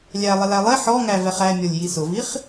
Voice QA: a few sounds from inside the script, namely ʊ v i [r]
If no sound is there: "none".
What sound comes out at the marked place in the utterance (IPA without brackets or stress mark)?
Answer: χ